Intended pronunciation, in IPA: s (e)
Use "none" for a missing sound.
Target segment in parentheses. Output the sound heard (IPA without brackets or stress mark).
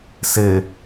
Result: e